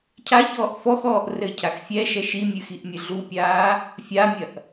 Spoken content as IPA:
cʰ a ç ɔː ʔ f ɔ x ɔː ʔ r ɘ cʰ a x fʲ ɛ ʃ ɛ ʃ i mʲ ɨ x i ʔ mʲ ɨ ɮ u pʲ aː | fʲ a mʲ ɐ ʔ

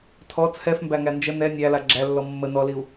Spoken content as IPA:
tʰ ɔ t͡sʰ ɛ f m b æ ŋ æ n d͡ʒ ə n ɛ nʲ æ l a ɡ͡ǁ æ lː ɔ mː ə n ɔ l i u̯

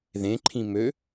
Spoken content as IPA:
ð ẽ ǃʰ ĩ m ø

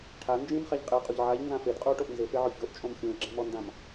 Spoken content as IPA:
ʈʰ a n d͡ʒ ĩ m χ a ʎ qʼ e qʼ u ʎ ʕ a ʎ n z ã f e d qʼ u o̯ ʈ o ʔ n z ɪ f e ʕ ʊ ç o ʔ t͡ʃʼ õ m xʲ ũ e̯ ɡ͡ǁ ɛ̃ m ɔ n d ã m

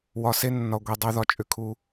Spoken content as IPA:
w ɒ˨ s e˦ nː ɒ˨ ɡʷ i˨ dˤ ʏ˦ ð ɒ˨ t͡ʃʼ ʏ˦ kʰ u˦

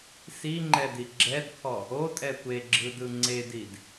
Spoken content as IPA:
s i ŋ͡ǃ ɛ d i ɡ͡ǁ ɛ d kʰ ɔ | o tʼ ɛ tʷ e ɡ͡ǁ ɯ d ɯ ŋ͡ǀ e d i d

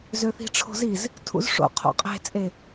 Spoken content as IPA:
z ø θ i̤ ʈ͡ʂʰ o̤ z i z | tʰ ṵ z ʂ o̰ qʰ o̰ qʼ e̤ t͡sʼ e

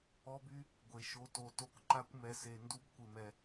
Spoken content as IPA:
ɔ˦ b y˦ | ɡʷ e˧ ʃ o˧ t o˨ t o˧ k ǃ a˦ kʷ m ɛ˧ s e˧ n d u˦ b kʷ ɪ˧ m ɛ˧

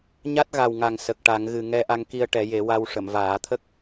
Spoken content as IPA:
ɲ a˦˥ t̚ ɣ a˨˩ w ŋ a˨˩ ŋ s ə˨˩ k̚ ʈ a˨˩˦ ŋ ɣ ɨ˨˩ ŋ ɛ˧ ʔ a˧ ŋ k i˧ ə̯ ʈ ɛ˨˩˦ j e˨˩˦ w a˧ w ʂ ə˨˩˨ m v aː˨˩˦ t̪ʰ ə˦˥ k̚

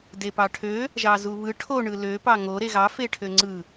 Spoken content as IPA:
d e p ɑ ʈʰ ø | ʒ ɑ z u β ɯ ʈʰ o ɳ ɯ l ø p ɑ ŋ o ɾ e ɣ ɑ f e ʈʰ ø ŋ͡ǀ ɯ

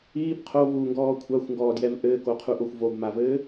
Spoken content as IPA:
iː b qʰ o v uː ŋ ɡ ɔː kʷʰ a xʷ ŋ ɡ ɔː d j ɛ v ʔ ɘː k o qʰ u ʔ o xʷ v o b m a v ɘː

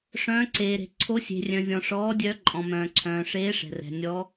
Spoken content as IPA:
ʂ œ̃ː˨˦ ǀ eː˩ ɾ e̤˩ ǀʰ o˨˦ sʲ e̤˩ rʲ œ̃˩ vʲ ɔ̃˩ ʂ ɔː˨˦ dʲ œ˨˦ ǃʼ ɔ̃˩ m œ̃ː˩ ǀʰ œ̃ː˩ ʂ eː˨˦ ʂ ɛ̤˩ r ɛ̤˩ nʲ ɔ˨˦

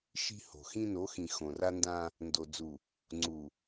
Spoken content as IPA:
ʃ i̤˦ h o̤˨ x ĩ˦ n o˨˦ x ĩ˨ x õ˨ r a˦ n d ã˦ | n d o˨ d͡z u˨ | ŋ͡ǀ u˨

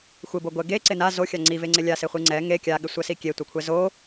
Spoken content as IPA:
xʷ ɪ b o ɡʷ ɛ ɡ e ǀ ɪ n a z o xʲ a ŋ͡ǀ i v e ŋ͡ǀ ɪ lʲ a s ɪ χʷ i ŋ͡ǀ ɛ ŋ e kʲ a ɠ ɪ sʷ ɛ s i kʲ e tʷ ɛ kʷʰ ɛ z o

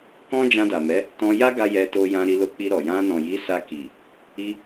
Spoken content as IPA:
k ɔ̃˦ d͡ʒ ã˧ d a˨ m ɛ˨˦ | t ɔ̃˧ j a˦ ɡ a˧ j ɛ˧ t o˧ j ã˧ ɾ i˧ l o˧ k͡p i˧ ɾ ɔ˨ j ã˧ n ɔ̃˨ j i˨˦ s a˧ k i˨ | i˧

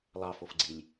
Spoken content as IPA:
lˠ ɑ f o f ɡ͡ǀ i lʲ

